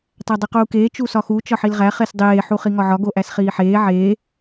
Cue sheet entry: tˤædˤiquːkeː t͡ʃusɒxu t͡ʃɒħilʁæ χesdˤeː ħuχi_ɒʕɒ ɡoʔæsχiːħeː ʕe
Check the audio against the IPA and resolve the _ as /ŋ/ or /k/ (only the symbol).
ŋ